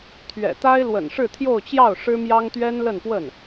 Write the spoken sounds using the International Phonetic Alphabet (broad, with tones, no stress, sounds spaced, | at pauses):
t̪ʰ ɥ ɛ̰˨˩ t̪ a˥ ɪ̯ l w ə̰˨˩ n ʂ ɻ̩˥˧ t̪ʰ j o˥˧ ʊ̯ t͡ɕ j ɑ˥˩ ʊ̯ ʂ ɻ̩˥ m j ɑ˥ ŋ t̪ ɥ ɛ˥ n l ə˥˧ n p w ə˥˩ n